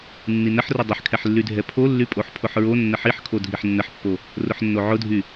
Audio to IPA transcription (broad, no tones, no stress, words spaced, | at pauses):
nːinəħrʊ dˤəħkʰɛħlːydʱɛ pʰolːy pʼoħpʰʊħɹo nːəħiħkʰo dʱiħnːəħpːo | rʊħnːoʕʊdʱy